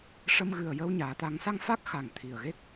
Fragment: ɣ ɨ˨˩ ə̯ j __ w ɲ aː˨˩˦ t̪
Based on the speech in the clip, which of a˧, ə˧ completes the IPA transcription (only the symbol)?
ə˧